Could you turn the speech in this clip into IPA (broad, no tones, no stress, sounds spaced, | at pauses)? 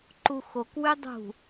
ǃ u x o k w y dˤ ṳ